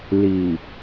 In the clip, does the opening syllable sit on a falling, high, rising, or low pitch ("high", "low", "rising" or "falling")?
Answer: low